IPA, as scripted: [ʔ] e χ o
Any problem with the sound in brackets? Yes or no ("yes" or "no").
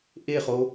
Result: no